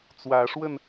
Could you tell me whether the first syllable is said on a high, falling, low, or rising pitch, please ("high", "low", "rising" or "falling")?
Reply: rising